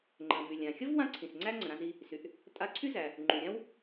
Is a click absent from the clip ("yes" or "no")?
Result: no